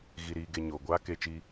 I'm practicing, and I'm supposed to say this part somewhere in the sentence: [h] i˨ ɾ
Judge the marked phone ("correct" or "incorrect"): incorrect